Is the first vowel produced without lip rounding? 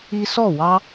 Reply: yes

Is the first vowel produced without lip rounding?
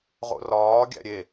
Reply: no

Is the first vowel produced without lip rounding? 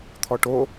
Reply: no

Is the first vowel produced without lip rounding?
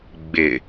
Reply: yes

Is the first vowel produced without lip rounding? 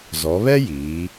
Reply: no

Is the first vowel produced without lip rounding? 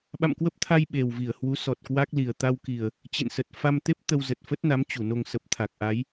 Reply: yes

